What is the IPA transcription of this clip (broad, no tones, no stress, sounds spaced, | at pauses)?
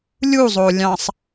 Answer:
lʲ u zˤ o lʲ ɑ̃ sˤ